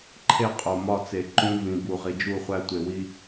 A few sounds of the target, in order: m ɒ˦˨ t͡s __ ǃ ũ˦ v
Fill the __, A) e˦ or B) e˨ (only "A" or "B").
B